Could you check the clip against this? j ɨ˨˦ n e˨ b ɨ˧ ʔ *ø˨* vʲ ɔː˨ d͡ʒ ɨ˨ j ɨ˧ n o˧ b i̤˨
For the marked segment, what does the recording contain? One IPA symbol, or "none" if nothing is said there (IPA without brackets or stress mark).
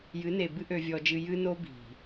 ø˨